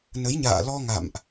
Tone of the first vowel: rising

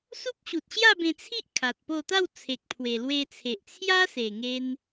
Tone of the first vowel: high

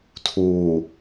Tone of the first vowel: low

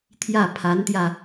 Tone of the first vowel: falling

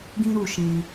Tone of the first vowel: high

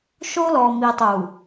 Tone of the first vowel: high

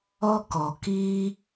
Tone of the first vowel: high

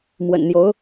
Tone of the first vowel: low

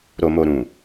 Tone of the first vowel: low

